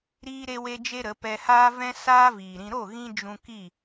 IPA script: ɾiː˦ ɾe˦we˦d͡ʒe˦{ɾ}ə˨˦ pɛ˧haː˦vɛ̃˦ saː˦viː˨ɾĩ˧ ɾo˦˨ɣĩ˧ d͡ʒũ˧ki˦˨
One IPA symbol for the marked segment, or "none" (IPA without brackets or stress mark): ɾ